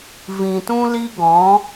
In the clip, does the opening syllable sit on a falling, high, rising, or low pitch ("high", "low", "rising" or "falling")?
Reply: low